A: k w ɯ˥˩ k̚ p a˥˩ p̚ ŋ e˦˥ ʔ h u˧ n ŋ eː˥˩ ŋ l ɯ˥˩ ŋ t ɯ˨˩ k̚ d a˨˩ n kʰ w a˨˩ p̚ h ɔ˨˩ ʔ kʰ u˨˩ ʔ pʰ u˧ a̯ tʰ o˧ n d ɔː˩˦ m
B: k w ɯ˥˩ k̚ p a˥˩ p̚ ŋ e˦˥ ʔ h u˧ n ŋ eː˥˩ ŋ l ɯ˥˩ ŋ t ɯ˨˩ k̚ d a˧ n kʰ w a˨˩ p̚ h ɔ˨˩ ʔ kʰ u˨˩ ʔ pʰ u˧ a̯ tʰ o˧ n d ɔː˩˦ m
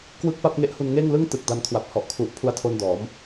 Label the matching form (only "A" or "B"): B